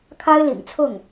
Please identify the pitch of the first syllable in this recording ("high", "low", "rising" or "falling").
high